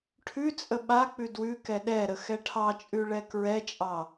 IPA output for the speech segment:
ʈʰ ʉ t͡sʼ ə ɓ a k͡p ʉ d w ʉ k ɛ ɗ ɛ ɾ ə x ɛ ʈʰ ɑ t͡ʃʼ ʉ ɭ ɛ k ɹ ɛ t͡ʃʼ ɑ

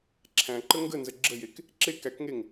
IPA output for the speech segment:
ǁʰ æ̃ ǃ ə ŋ ɡ ə n z ə ɡ͡ǁ ə j e k | ǁ e k æ k ŋ e ŋ

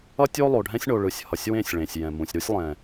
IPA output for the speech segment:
ʌ˦ tʲ o˦ lˠ o˨ ɖʱ ɛ̃˦ sʲ ɳ o˨ ɭ ɯ˨ sʲ h ʌ˨ sʲ w ẽ˦˨ sʲ ɭ ẽ˨ sʲ j ɛ̃˨ m ũ˨ sʲ ɾ u˦ sʲ lˠ ɛ̃˨

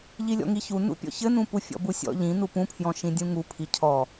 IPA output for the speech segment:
ʎ i lʲ ɔ̰ ŋ i ç u n ṵ pʲ ɔ̰ ç ɘ n ũ p u fʲ ɔ̰ b u sʲ ɔ̰ ʎ ĩ n u p ũ pʰ j ɔ̃ ʃ ĩ dʲ ũ ŋ u pʰ i cʰ ɔ

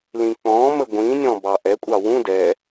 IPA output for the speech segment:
l ĩ k͡p ɔ̃ m ə ɡʷ ĩ nʲ ɔ̃ b ɑ ʔ ɛ kʷʼ ɑ w ũ d ɛ

